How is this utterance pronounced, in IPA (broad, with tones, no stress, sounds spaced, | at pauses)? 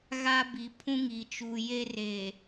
ɣ a˦ b i˨ pʰ ũ˦ ŋ i˨ t͡ʃ uː˨ j e˦ r e˨